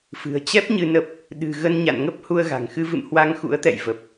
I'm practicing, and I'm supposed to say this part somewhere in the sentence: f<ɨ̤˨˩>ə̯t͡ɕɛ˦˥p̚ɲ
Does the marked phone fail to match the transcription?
no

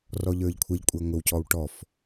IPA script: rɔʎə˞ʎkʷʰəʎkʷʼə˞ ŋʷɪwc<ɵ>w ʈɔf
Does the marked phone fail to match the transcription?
yes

